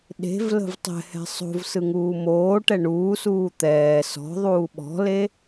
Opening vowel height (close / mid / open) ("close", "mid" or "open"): mid